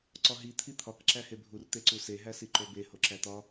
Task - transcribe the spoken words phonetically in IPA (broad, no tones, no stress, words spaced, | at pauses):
ǀɒɦi t̪ʰit̪ʰɒk ǁæhebʱur t̪eǀuse ɦæsiǃobe hoǁæt̪ɒ